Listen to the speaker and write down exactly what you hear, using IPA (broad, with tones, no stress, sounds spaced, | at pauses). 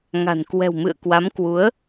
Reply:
ŋ a̤˨˩ n k w ɛ̤˨˩ w m ɨ̰˧˨ ə̯ k w a˨˦ m k w u˨˦ ə̯